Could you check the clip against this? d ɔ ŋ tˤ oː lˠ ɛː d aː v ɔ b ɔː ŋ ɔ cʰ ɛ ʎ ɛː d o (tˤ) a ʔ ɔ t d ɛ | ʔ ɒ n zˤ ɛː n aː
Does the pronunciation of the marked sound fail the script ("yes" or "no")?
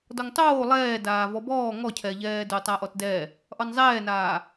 no